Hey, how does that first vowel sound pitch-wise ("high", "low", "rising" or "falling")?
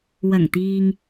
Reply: low